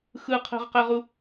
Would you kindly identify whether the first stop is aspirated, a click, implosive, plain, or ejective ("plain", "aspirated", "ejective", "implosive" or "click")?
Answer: aspirated